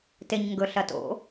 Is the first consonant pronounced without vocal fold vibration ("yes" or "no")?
yes